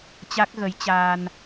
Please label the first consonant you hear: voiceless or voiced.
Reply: voiceless